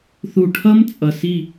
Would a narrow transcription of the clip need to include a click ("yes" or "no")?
no